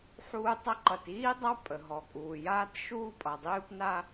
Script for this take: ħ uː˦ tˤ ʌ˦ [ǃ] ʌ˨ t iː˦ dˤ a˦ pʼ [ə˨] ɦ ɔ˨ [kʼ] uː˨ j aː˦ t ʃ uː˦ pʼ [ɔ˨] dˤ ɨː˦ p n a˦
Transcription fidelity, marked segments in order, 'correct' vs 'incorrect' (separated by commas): correct, correct, correct, incorrect